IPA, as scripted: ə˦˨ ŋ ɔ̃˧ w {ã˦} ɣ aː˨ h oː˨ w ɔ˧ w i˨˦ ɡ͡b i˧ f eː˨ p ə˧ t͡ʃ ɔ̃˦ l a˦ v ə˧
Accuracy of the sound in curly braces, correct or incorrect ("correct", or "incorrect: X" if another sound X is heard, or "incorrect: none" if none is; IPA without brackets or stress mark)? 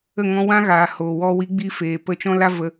correct